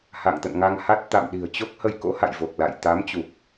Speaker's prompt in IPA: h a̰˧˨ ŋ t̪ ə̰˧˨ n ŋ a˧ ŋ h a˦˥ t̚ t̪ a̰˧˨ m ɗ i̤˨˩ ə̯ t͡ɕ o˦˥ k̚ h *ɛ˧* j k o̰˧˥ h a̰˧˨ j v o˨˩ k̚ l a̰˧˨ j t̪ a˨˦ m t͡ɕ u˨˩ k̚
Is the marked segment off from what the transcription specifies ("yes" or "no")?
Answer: yes